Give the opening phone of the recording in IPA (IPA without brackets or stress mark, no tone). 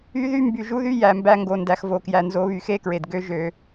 y